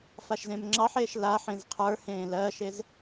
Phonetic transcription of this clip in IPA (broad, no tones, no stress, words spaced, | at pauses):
faʃzẽmŋ͡ǁɑħeːʃ laħẽz qʰə˞hẽː lɜːʃez